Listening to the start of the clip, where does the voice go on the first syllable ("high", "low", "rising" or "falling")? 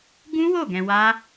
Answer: high